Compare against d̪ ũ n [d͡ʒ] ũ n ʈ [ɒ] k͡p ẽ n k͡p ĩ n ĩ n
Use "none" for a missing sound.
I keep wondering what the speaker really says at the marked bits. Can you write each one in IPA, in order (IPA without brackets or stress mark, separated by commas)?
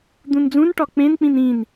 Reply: d͡z, ɒ